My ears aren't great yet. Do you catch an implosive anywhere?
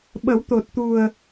yes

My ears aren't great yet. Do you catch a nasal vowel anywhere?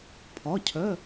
no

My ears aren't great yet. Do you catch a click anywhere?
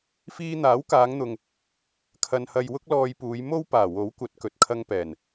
no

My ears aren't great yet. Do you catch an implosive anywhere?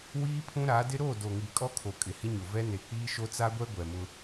no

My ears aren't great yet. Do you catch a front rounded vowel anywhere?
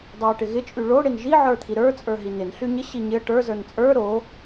yes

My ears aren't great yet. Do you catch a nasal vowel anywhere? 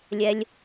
no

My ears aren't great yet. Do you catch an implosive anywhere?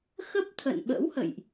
yes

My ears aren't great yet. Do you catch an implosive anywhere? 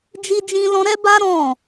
no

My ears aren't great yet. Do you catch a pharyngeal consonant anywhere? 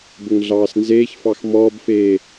no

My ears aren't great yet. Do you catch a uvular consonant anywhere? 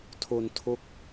no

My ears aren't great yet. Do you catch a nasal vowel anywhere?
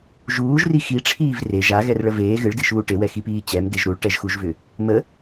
no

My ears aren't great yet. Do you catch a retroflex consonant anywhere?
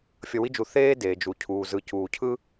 no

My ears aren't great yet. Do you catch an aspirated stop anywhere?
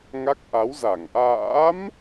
no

